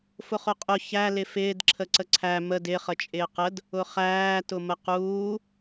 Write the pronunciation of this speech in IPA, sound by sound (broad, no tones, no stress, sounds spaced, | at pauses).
f ʊ χ ʊ qʼ ʊ ç æ l ɪ f ɪː d ǁʰ ə ǀ ə ǀʰ æ m ə d ɪ χ ə t͡ʃʼ ɪː q ə d | ʊ χ æː t ʊ m ə q uː